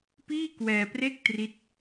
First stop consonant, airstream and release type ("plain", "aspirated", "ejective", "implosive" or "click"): plain